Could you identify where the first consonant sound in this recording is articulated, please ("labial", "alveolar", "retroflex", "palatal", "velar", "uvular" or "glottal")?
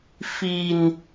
labial